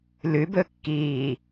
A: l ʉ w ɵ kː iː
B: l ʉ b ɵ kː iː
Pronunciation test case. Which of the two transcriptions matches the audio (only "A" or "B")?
B